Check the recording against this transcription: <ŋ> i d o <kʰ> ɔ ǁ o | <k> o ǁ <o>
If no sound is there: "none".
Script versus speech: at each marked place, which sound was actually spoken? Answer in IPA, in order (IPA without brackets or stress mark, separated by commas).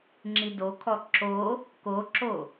ŋ͡ǁ, kʰ, k, o